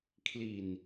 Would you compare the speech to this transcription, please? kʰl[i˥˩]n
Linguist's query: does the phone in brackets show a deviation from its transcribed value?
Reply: yes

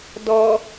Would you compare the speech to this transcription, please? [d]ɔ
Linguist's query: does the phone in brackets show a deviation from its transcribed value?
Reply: no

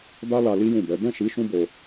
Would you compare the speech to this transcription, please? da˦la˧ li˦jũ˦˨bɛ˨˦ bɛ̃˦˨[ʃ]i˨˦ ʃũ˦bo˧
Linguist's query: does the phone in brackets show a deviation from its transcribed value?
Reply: no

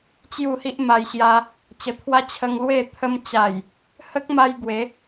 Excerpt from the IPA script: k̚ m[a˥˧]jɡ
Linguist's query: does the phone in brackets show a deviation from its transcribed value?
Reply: yes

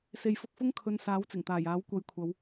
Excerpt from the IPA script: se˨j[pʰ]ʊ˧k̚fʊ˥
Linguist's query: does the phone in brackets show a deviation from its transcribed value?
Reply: yes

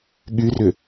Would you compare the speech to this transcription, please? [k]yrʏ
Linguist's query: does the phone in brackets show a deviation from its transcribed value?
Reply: yes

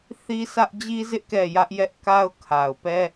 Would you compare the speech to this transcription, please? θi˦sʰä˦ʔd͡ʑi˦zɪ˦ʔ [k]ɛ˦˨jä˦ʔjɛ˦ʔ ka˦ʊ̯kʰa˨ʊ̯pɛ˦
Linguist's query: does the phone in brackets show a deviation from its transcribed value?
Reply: no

